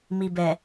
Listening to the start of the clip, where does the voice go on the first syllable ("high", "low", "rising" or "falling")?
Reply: low